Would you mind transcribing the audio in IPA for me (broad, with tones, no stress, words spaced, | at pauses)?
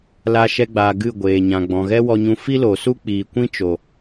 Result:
la˧ʃɛ˧ɡ͡baː˨ ɡɨ˦˨ɡʷeː˨ɲã˨ ɡ͡bɔ̃˨ɣɛ˦wɔ˧ɲũ˧ fi˦lo˨su˦ k͡piː˨kʷĩ˦t͡ʃo˨